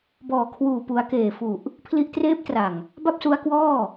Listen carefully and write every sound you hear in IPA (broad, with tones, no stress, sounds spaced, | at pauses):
b ɔː˨˩ kʰ w uː˨˩ p u˩˦ a̯ k eː˨˩ f u˨˩ ʔ | pʰ l i˦˥ ʔ t r eː˦˥ p̚ t r a˨˩ ŋ | b a˥˩ p̚ s u˦˥ a̯ k w ɔː˥˩